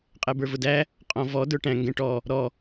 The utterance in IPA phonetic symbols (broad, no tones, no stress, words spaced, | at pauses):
qʼɛbə˞vʊdæ | qʼɔ̃vɔ də˞ʈæ̃ ŋɡɛ̃ʈɔ | ɾɔ